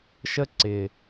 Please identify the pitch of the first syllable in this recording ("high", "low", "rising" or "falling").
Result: high